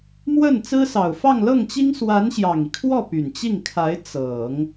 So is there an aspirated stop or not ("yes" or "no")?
yes